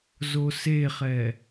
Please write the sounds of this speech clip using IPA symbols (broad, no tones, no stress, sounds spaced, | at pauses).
z o s e χ ɛ